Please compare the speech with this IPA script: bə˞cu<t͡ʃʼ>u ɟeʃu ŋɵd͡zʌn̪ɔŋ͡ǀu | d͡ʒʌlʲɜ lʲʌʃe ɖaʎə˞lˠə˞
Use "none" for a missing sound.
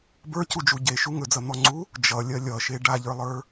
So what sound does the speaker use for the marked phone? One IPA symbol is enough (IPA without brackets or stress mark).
d͡ʒ